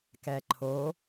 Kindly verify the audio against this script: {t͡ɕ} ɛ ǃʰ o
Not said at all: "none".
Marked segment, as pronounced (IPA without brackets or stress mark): k